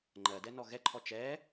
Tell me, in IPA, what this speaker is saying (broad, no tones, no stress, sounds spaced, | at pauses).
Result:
ŋ͡ǃ ɜ d ɛ n ɔ ɣ ɛ ǃʰ ɔ t͡ʃ ɛ